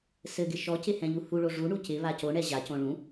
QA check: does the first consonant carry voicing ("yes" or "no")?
no